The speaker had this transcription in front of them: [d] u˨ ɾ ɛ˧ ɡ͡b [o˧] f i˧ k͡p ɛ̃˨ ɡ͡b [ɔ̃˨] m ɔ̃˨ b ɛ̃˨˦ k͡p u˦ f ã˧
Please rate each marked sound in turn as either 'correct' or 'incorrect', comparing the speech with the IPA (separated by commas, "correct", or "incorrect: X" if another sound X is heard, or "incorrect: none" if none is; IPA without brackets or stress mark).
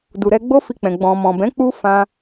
correct, incorrect: o˦, correct